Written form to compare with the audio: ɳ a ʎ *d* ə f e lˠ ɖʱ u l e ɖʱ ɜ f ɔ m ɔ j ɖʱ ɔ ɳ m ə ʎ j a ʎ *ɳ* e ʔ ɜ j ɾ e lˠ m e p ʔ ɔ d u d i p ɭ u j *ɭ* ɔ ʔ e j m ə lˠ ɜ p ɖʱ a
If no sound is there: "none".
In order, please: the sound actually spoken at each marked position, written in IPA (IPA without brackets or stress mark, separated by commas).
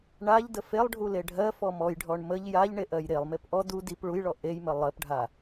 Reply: d, ɳ, ɭ